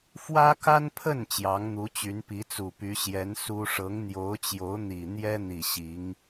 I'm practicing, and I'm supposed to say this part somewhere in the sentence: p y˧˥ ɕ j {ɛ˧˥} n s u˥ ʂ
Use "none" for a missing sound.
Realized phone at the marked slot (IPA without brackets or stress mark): ɛ˧˥